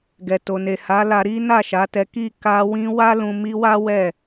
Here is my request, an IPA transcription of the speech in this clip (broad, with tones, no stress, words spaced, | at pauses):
ɡɛ˨to˨ ne˨ha˨˦ la˧ɾi˦ na˦˨ʃa˨˦ tɛ˦ ki˦˨ ka˧wĩ˧ wa˦lũ˧ mi˦ wa˦wɛ˦˨